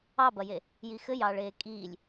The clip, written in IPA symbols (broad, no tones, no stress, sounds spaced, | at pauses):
ɑ b ɐ j e | j i x ɘ j ɑː ɭ eː kʼ iː lʲ